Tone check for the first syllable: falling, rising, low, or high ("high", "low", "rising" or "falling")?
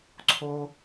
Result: high